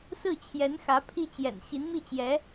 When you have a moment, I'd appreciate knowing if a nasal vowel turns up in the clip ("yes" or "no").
no